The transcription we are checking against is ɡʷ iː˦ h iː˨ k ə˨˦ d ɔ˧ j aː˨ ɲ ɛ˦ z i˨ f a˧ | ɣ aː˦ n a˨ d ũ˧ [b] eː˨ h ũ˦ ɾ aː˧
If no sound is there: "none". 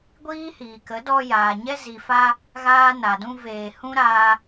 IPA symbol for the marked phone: v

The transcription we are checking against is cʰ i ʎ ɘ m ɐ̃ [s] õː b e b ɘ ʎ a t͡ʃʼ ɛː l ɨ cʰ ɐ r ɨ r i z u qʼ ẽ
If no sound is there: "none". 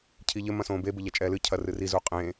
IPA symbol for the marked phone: s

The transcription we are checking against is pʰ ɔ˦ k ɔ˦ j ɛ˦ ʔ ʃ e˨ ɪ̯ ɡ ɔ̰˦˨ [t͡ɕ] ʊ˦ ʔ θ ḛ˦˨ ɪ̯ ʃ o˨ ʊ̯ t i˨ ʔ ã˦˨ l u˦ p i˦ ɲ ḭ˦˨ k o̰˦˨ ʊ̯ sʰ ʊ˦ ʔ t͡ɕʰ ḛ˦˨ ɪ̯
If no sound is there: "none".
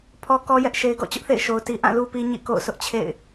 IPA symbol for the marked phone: t͡ɕ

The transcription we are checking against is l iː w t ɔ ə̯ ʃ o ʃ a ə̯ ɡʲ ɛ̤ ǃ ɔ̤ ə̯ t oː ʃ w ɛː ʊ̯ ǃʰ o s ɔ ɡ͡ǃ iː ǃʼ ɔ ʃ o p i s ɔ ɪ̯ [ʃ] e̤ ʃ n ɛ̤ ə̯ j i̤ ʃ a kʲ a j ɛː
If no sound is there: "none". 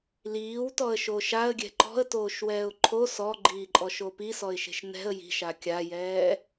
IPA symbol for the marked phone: ʃ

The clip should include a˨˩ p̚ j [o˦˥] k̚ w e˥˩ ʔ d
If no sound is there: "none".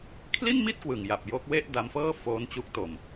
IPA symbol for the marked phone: o˦˥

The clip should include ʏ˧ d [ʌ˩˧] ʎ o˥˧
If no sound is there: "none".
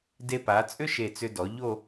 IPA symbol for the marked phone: ɔ˩˧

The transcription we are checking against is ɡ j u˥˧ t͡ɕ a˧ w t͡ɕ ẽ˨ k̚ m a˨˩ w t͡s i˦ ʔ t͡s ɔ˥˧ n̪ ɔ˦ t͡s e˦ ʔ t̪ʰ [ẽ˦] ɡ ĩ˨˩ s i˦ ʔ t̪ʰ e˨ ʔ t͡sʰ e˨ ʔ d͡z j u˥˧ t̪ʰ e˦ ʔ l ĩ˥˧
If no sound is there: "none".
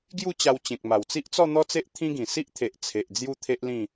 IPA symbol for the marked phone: ĩ˦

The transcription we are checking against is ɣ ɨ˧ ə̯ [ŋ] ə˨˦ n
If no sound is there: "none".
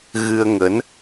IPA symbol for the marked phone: ŋ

